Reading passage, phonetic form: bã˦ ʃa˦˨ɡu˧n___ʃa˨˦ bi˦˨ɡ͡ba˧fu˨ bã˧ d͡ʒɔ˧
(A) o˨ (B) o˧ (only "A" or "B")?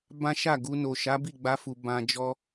A